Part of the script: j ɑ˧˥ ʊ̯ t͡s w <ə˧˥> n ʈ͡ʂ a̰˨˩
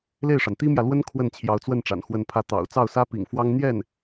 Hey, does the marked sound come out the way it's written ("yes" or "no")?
no